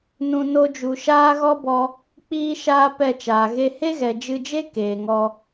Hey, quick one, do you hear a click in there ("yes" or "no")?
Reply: no